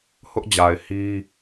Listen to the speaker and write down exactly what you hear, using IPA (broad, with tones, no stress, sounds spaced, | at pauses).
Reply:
h ʊ˦ ʔ d͡ʑ a˨ ɪ̯ h i˦